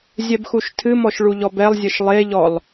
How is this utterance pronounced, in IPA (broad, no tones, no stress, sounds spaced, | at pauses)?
zʲ ɛ b x u ʃ tʰ ɨ m ɔ ʃ ɭ u ʎ ɔ b ɛ lˠ zʲ ɘ ʃ lˠ e ʎ ɔ lˠ